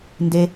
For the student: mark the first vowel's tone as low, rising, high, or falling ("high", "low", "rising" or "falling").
high